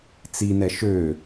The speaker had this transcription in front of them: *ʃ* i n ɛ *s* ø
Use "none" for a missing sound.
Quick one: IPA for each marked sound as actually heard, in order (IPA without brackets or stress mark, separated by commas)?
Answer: t͡s, ʃ